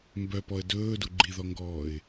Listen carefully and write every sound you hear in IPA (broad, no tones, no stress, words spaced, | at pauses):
mbœpɔə̯ dɵːdu ɡ͡ǃiðɔŋɡɔːɪ̯